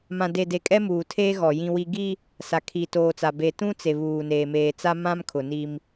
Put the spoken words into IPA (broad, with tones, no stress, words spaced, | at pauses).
mã˨de˨de˨ kʼɛ˦muː˨tʰeː˦ ɣɔ˨jĩ˦wi˦ ɡi˦ | sa˨kʰi˨toː˨t͡sa˨ be˨tũ˦t͡se˨ βuː˨neː˨meː˨t͡sa˦ mã˦mkʰʊ˨ni˦m